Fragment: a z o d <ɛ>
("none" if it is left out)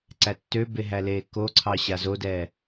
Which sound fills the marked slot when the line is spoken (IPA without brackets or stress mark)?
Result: ɛː